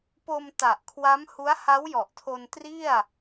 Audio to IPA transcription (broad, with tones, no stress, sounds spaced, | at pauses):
p o˧ m t a˨˩ ʔ kʰ w a˦˥ m h u˦˥ a̯ h a˦˥ w j ɔ˨˩ ʔ tʰ o˧ n t r i˥˩ a̯